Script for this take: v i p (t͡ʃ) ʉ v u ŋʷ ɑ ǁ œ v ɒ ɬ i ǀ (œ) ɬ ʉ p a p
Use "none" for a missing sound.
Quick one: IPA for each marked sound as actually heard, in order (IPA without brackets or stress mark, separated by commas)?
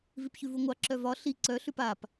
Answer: ç, œ